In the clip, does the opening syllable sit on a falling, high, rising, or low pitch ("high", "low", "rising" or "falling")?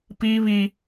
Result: high